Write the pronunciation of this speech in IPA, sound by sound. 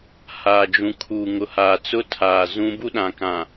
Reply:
h aː˨ d͡ʒ ũ˨ kʰ uː˨ ŋ ʊ˨ h aː˨ t͡s ʊ˦ tʰ aː˨ z ũ˦ b u˦ ɗ ã˨ k ã˨

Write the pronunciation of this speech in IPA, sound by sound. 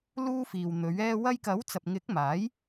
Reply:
l uː˥ f iː˨ w n̪ ɵ˨˥ ɥ ɛː˥ w ɐ˧ j k ɐ˨˥ w t͡s ɐ˨ p̚ ŋ ɪ˨˥ k̚ m aː˨˥ j

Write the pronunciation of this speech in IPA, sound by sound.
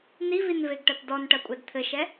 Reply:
n i v i n v e ɡ ʈ ɐ t d ɔ n ʈ ɐ kʷʼ ɛ d t̪ʰ ɘ ʃ ɛ

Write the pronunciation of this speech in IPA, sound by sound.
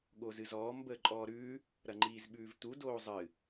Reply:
ɠ o z ɨ z ɔː m b əː ǃʼ ɔː ɾ ʉː | ɾ ɐ ŋ͡ǃ iː z ɓ ʉː v t̪ u d oː zˤ ɨ

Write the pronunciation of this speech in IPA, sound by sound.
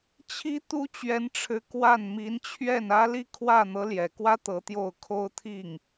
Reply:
t͡ɕʰ i˥ t̪ u˥ t͡ɕ ɥ ɛ˧˥ n ʈ͡ʂʰ ɻ̩˧˥ k w a˥˩ n m i˧˥ n t͡ɕʰ ɥ ɛ˥˩ n ä˥ l i˥ kʰ w ä˥˩ n̪ ɤ˧˥ l j ɛ˨˩ k w ä˥ t̪ ɤ˧˥ t̪ j o˥˩ ʊ̯ kʰ o˥ ʊ̯ t̪ʰ i˥˩ ŋ

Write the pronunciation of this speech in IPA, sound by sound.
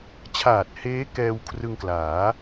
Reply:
t͡ɕʰ aː˨˩ t̚ h eː˦˥ k ɛː˧ w kʰ r ɯ˧ ŋ k l aː˩˦

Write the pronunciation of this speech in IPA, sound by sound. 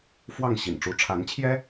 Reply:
f w ɑ˥˩ ŋ ɕ ḭ˨˩ n ʈ͡ʂ u˧˥ ʈ͡ʂʰ a˧˥ n t͡ɕʰ j ɛ˥

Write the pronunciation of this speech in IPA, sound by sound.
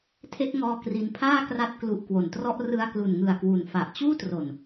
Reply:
tʰ e˦˥ k̚ ŋ ɔː˧ k r i˧ n pʰ aː˥˩ k r a˦˥ t̚ k l u˦˥ ʔ k w o˨˩ n t r ɔ˥˩ ʔ r ɯ˧ a̯ k l u˨˩ n ŋ ɯ˨˩ a̯ k w u˩˦ n f a˨˩ ʔ t͡ɕ uː˥˩ t r o˨˩ n

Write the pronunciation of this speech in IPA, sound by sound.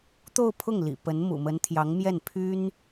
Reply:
t̪ o˥˧ ʊ̯ pʰ ʊ˥˩ ŋ l ḭ˨˩ p ə˧˥ n m ṵ˨˩ m ə˧˥ n t̪ʰ j ɑ˧˥ ŋ m j ɛ˥˩ n pʰ y˥ n

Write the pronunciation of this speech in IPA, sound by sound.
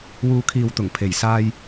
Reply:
w uː˨˧ kʰ iː˨ w t̪ ʊ˨˩ ŋ pʰ e˨˩ j s aː˧ j

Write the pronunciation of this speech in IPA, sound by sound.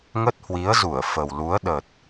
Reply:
ŋ ə˦˥ t̚ h w i˨˦ ə̯ z u˧˩ ə̯ f ə˨˩ w l u˨˦ ə̯ ɗ ə˨˩ t̚

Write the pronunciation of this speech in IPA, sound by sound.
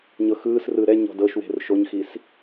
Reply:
ɲ ɤ x ɯː s r ɯ ɾ ɛ ɲ ɔ̤ d ɤ ʃ w e̤ r ʃ o ɲ x i s

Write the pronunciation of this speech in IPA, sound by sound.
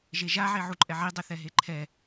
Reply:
ʒ e ʒ a ʕ e ʕ u ǃʼ ɛ ʕ i dˤ ɪ θ ɛ ɦ e ǃʰ ɛ

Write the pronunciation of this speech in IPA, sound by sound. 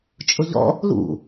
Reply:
t͡ʃʼ ʊ ʎ ɔ̰ | l ṵ

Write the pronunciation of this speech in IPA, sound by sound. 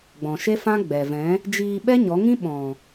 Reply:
ɡ͡b ɔ̃˨ ʃ e˦ f ã˦ ɡ͡b ɛ˨ v ɛ̃˨˦ | d͡ʒ iː˧ ɓ ɛ˦ ɲ ɔ˨˦ ŋ ĩ˦ ɓ ɔ̃˨

